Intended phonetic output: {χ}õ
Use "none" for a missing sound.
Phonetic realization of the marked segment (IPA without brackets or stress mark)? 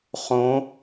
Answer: χ